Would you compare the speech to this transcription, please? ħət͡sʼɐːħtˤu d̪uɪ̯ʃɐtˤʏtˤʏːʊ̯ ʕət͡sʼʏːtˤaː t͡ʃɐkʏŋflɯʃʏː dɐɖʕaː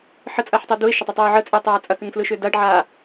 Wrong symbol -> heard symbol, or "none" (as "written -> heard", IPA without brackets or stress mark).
t͡ʃ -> t͡sʼ